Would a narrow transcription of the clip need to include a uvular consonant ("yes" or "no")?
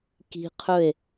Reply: yes